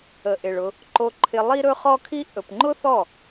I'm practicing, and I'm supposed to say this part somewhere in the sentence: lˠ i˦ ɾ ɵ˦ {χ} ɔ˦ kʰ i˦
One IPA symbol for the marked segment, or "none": χ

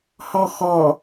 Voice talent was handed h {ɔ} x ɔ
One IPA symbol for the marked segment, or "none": ɔ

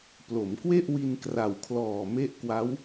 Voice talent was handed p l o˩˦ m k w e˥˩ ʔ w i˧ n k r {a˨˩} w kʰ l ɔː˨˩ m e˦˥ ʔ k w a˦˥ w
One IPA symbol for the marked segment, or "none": a˨˩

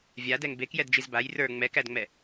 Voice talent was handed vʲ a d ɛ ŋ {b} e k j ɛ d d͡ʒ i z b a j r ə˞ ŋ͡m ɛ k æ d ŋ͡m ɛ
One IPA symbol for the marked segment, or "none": b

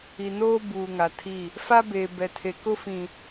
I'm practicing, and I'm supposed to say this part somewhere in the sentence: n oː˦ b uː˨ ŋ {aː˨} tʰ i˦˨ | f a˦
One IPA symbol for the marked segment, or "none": a˨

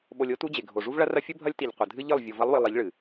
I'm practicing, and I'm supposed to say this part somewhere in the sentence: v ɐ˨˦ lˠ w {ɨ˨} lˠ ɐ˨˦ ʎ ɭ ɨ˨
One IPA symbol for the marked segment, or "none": ɨ˨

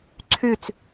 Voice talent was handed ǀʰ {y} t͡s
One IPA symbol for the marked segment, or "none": y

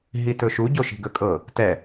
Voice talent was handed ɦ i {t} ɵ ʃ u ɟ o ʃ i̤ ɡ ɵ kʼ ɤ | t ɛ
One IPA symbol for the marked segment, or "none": t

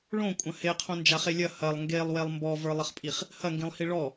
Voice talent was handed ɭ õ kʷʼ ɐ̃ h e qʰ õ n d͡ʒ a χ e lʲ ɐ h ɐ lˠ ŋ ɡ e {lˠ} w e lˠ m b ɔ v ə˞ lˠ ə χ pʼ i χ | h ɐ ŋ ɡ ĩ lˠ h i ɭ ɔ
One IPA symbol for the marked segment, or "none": lˠ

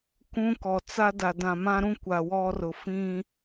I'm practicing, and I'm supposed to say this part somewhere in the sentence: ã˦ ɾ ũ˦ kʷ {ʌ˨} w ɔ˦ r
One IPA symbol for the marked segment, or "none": a˨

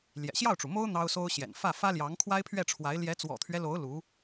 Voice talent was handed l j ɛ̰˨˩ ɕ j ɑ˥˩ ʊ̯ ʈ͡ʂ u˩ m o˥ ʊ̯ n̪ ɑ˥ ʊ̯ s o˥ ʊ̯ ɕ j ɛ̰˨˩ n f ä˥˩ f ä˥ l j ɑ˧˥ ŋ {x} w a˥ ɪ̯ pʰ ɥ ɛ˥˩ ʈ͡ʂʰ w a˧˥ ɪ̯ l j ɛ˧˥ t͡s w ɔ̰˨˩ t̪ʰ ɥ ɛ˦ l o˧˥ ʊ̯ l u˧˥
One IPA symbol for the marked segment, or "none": kʰ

